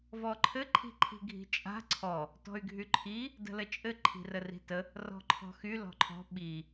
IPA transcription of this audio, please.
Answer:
v ɔ ǃʰ ɘ ǃʰ i̤ ǃʰ i̤ ɡʱ i̤ t͡ʃʼ a̤ ǀʰ ɔ | t ɔ̤ y̯ ɡʱ y ǃʰ i | d ə̤ l ə t͡ʃʼ ɘ ǃʰ i̤ r ə r i̤ t ə | r ɔ̤ ǃʰ ɔ̤ x y l ɔ̤ ǃʰ ɔ̤ ɓ i

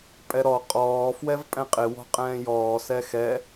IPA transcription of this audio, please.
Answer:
pʼ ɛ ɾ ɔ qʼ ɔː f w ɛ v pʼ ɛ̃ qʼ ɪ w ɔ̤ qʼ ɛ̃ː j ɔː s ɛ x ɛ

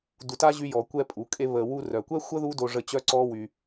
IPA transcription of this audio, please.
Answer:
d u˧ t a˦ ʑ y˦ j ɔ˧ kʷ ɛ˦ pʼ u˨˦ kʼ e˦ β ə˧ w u˧ r œ˨ kʷ ɛ˦ xʷ ə˦ ð u˦ d o˧ ʐ ə˦ t͡ɕ œ˦ ǀ ɔ˦ w y˧

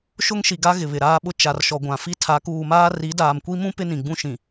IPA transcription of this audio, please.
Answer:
ʃ ʊ˦ ŋ ʃ i˨ ɡ a˦ ɣ ɪ˨ β ɪ˨ ɾ aː˦ ɓ ʊ˦ t͡ʃ a˨ r ʃ ɔ˨ ɡʷ ã˨ f i˦ tʰ a˨˦ k uː˨ m aː˦ r i˨˦ d aː˨ m kʷ i˦ m ũ˦ p ɪ˦ n ĩ˨ ɡ͡b ũ˦ ʃ ĩ˨

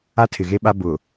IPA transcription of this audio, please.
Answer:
a˦ tʰ ɪ˨ ɣ e˦ ɓ a˦ b ʊ˨

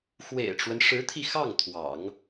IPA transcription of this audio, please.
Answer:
x w ḛ˨˩ ɪ̯ ʈ͡ʂ w ə˦ n ʂ ɻ̩˧˥ t̪ʰ i˧ x ɑ˥˩ ŋ t̪ʰ w ɑ̰˨˩˦ ŋ

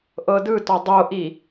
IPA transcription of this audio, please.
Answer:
ʔ ɤ d ɯ t ɔ dˤ o ʔ i

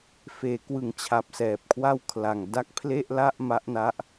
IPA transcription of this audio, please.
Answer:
f eː˩˦ k w ɯ˨˩ ŋ t͡ɕʰ a˨˩ p̚ s ɛː˨˩ p̚ kʰ w a˥˩ w kʰ l a˨˩ ŋ d a˥˩ k̚ pʰ l e˥˩ ʔ l a˥˩ ʔ m a˦˥ ʔ n a˦˥ ʔ

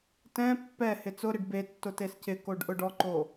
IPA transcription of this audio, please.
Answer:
t ɛ̃ pː ɛ h ɪ t͡s ʊ ɾ ɪ ɖ b e tː ʊ t e s c ɪ k o ɖ ʔ ʊ ɖ ɔ ǃ o

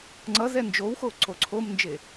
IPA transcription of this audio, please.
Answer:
ŋ͡ǀ ʌ z ɛ n d͡ʒ o w x o ǀ o ǀʰ o m n d͡ʒ e

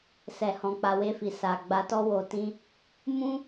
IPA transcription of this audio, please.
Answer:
s ɛ˨ h ɔ̃˨ k͡p a˨ w e˧ f i˨ s a˨ ɡ͡b a˧ t ɔ˦ w o˧ t ĩ˦ | m ũ˦

